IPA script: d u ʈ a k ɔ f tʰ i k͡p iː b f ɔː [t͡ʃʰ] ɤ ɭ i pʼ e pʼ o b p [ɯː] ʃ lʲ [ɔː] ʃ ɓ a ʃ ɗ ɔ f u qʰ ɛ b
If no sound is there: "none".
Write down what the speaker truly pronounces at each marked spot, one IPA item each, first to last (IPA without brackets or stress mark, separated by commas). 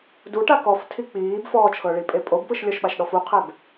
t͡ʃʰ, ɯ, ɔ